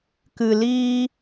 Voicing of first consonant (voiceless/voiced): voiceless